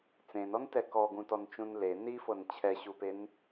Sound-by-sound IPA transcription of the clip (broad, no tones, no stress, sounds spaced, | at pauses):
t͡s ẽ n ɔ n t ɛ k ɔ ɡ ũ t ɔ n t͡ʃ ũ n l e n i f ɤ n t͡ɕʰ ɛ ɕ u p e n